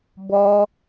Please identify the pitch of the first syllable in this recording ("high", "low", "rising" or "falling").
high